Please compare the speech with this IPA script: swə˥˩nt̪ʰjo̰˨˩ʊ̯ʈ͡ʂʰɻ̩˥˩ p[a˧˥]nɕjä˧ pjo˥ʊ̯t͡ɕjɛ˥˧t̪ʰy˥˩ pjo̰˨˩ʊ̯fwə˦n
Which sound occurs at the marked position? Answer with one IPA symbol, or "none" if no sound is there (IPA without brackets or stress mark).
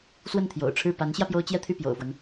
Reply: a˧˥